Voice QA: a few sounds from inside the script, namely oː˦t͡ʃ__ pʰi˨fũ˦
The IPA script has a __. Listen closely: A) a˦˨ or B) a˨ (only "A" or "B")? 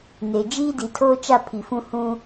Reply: A